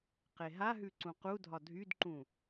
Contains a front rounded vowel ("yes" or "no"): yes